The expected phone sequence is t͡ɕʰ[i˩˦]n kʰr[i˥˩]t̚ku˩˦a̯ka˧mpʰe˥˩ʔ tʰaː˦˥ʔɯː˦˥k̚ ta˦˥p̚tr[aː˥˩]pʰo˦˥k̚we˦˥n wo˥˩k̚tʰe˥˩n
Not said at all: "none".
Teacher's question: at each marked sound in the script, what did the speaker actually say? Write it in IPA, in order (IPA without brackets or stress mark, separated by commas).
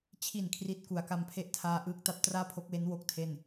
i˨˩, i˦˥, aː˥˩